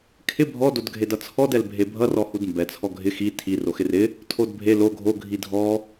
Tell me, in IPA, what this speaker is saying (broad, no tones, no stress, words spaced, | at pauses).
kʰɪ bʱɔ dodɡʱedʌt͡sʰɔd ɛlbʱebʱʌr ɔhudmbɛ t͡sʰɔɡʱɪ xi tʰi roxɪrɪ | tʰodbʱe lo ɡʱo ɡʱidʱɔ